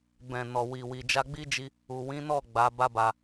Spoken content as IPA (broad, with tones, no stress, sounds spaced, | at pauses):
b ɛ̃˨ n ɔ˨ w i˨ w i˨ d͡ʒ a˧ ɡ͡b i˦ d͡ʒ i˧ | u˨ w ĩ˨˦ n ɔ˦˨ ɡ͡b a˨˦ b a˦ b a˧